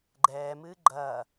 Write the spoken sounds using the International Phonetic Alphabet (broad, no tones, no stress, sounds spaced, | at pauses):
ɡ͡ǃ ɛː m ɨː ɡ͡ǃ ɐː